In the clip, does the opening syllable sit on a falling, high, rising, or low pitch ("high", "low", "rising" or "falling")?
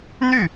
falling